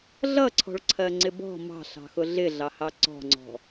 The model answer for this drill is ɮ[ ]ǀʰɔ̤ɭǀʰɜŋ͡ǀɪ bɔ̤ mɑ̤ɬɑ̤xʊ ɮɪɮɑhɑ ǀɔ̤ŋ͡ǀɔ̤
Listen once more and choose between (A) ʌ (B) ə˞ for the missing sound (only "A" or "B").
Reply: A